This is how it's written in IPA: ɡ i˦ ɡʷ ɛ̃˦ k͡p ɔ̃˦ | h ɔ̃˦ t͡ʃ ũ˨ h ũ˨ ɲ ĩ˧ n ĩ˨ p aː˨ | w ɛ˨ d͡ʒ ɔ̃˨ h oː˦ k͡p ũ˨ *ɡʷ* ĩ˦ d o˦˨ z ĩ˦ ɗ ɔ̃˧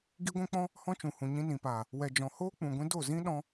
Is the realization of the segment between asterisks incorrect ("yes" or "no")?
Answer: no